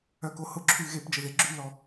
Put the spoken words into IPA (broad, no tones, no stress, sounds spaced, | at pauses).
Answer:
œ k o h ʊ ǁʰ y ɣ e p d͡ʒ ə ð e ɡ͡ǁ y l ɔ